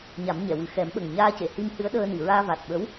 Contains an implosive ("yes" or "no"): yes